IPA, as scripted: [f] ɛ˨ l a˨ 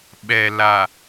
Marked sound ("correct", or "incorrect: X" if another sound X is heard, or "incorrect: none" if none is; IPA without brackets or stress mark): incorrect: ɓ